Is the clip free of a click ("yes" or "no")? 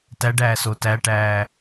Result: yes